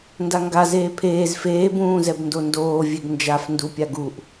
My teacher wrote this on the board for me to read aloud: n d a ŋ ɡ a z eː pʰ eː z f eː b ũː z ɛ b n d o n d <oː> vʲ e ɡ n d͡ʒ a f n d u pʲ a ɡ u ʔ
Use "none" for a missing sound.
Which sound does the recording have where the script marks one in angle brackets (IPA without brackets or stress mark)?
oː